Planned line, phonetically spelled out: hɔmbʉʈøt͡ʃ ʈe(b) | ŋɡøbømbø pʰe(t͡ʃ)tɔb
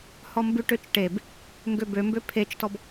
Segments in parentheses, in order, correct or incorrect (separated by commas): correct, correct